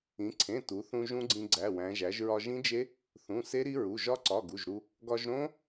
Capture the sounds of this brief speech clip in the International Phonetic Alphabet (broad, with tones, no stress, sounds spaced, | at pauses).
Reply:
ĩ˩˧ ǀʰ ẽ˩˧˩ t u˩˧ θ ũ˧ ʒ ũ˦˥ ɡ͡ǀ ĩ˧ ɡ͡ǀ æ˩˧˩ w æ̃˩˧ ʒ æ˩˧ ʒ ɹ ɒ˧ ʒ ĩ˦˥ d͡ʒ e˦˥ | θ ũ˩˧˩ s e˦˥ ɾ i˦˥ ɹ u˩˧˩ ʒ ɒ˦˥ ǀ ɒ˩˧˩ ɡ u˩˧˩ ʒ ɾ u˧ | ɡ ɒ˧ ʒ ɾ õ˦˥